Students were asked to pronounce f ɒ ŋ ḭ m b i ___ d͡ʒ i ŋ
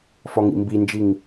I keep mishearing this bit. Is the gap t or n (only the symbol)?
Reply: n